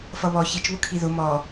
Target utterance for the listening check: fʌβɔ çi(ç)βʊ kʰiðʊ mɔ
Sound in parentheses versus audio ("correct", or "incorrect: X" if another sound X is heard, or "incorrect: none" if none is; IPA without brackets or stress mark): incorrect: t͡ʃ